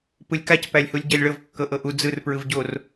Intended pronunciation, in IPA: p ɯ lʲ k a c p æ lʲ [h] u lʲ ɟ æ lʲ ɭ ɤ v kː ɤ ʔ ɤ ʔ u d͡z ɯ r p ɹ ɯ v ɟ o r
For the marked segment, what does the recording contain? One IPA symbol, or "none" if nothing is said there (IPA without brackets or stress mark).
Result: h